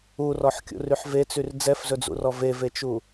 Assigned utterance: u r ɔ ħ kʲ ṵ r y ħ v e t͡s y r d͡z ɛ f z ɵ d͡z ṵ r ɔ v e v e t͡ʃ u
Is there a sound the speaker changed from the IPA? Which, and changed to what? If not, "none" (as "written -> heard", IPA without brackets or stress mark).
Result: none